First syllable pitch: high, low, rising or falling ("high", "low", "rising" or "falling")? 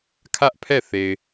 high